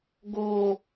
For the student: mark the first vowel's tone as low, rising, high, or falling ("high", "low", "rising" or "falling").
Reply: low